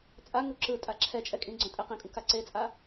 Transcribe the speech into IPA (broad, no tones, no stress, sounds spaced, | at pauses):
t͡sʼ a ŋ u ǁ ɯ tʼ a ǁʰ ɛ t͡ʃʼ ɛ kʼ ĩ ɡ͡ǀ õ tʼ e q ĩ kʼ ũ k a ǀ e t͡sʼ a